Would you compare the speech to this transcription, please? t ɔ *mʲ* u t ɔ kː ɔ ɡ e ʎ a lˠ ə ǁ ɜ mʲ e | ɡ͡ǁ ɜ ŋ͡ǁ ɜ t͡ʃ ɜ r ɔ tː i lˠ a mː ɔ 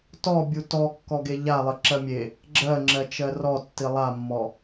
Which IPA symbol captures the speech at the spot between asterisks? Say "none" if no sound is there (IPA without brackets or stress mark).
bʲ